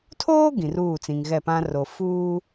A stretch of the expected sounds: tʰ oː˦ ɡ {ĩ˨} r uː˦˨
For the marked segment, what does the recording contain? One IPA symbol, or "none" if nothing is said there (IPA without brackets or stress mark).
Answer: ĩ˨